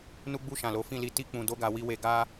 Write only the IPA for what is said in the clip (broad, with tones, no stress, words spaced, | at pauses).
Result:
nu˧ɡ͡bu˧ ʃã˨lo˨˦fĩ˦˨ li˧ ti˦ k͡pũ˧ do˦ɡa˧ wi˧we˧ ɡa˦